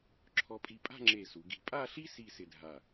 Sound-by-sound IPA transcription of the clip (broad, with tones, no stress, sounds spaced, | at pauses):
ǁʰ ɔ˧ pʼ i˧ pʼ a̤˥˧ ŋ͡ǁ e˧˩ s u˩˧ ɡ i̤˧˩ pʼ a˥˧ ɬ i˥ s i˥˧ s ɪ˧ dʱ a˧˩